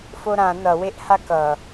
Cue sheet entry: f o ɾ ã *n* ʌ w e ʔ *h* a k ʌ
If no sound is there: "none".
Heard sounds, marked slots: n, h

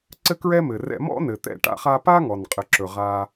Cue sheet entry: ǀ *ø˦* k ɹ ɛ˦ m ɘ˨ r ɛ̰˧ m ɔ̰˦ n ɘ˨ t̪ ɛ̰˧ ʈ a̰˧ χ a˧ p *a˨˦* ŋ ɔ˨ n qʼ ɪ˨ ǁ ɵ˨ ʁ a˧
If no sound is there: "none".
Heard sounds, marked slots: ɘ˦, a˦

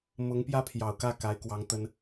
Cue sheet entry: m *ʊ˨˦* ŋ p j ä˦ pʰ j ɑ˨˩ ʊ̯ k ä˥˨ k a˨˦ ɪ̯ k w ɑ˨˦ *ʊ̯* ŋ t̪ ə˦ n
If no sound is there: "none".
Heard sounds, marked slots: ʊ˨˦, none

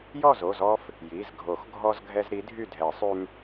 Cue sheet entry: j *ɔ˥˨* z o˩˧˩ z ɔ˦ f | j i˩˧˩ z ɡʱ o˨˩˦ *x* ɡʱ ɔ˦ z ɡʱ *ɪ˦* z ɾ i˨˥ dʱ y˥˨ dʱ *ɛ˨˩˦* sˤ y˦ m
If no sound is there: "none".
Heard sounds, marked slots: ɔ˥˨, x, ɛ˦, ɛ˨˩˦

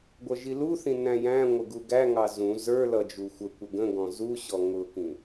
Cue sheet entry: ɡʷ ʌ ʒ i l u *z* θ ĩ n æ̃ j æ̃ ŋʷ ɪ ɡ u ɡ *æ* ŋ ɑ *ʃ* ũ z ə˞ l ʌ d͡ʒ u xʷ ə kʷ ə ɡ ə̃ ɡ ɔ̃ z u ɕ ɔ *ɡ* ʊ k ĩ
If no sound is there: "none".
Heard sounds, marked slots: none, æ, z, ŋ

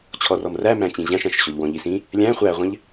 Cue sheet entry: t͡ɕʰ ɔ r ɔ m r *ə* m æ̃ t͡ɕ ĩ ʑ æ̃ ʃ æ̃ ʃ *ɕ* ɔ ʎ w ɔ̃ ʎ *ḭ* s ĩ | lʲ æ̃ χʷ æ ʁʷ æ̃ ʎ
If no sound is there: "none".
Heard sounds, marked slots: æ, ɕ, i

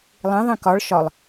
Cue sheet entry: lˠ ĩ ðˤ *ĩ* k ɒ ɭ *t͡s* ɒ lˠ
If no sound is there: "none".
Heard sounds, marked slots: ĩ, ʃ

